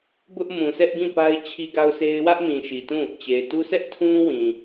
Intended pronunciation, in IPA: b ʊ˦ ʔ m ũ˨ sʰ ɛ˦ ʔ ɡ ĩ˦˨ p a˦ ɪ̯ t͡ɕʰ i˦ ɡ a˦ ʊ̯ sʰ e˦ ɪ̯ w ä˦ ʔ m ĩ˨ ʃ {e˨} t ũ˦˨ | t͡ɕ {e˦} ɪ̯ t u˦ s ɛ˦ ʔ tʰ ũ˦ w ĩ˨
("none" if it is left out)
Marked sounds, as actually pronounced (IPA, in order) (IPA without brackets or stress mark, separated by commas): i˨, e˨